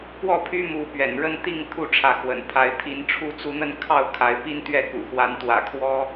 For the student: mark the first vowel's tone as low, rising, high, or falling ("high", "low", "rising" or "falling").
falling